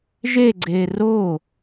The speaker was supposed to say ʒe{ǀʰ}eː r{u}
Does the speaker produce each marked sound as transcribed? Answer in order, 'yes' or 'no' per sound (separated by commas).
no, no